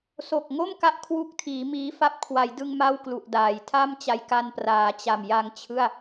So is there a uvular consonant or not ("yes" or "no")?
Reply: no